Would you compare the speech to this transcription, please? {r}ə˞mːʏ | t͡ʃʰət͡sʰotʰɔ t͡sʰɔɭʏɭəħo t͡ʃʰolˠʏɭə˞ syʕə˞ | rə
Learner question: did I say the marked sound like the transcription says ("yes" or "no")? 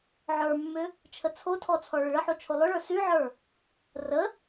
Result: no